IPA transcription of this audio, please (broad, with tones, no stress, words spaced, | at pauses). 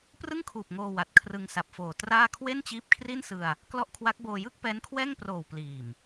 prɯ˥˩ŋkʰuː˨˩p̚ ŋoː˧ wa˨˩t̚kʰrɯ˧ŋsa˨˩p̚foː˨˩ traː˥˩ kʰwe˥˩nt͡ɕiː˦˥p̚kʰri˥˩nsɯ˧a̯ | klɔ˦˥ʔkʰwa˦˥k̚boː˧ jɯ˥˩k̚pɛː˦˥nkʰwɛː˥˩ŋproː˨˩w pliː˨˩m